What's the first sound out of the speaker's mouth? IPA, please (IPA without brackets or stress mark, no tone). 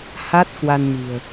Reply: h